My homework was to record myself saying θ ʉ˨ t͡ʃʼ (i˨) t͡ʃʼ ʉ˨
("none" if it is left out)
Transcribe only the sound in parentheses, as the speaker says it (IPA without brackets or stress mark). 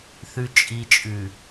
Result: i˨